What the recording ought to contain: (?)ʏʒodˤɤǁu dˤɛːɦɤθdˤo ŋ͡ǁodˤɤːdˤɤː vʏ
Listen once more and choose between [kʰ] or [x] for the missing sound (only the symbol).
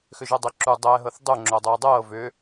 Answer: x